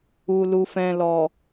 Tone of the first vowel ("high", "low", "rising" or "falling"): low